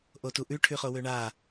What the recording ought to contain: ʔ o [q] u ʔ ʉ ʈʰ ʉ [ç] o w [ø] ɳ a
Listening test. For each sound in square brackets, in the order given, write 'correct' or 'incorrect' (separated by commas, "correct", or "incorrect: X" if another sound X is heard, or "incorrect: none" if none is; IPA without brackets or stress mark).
incorrect: t, incorrect: χ, correct